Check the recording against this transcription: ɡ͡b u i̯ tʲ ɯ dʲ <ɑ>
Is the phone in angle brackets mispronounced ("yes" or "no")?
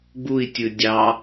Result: no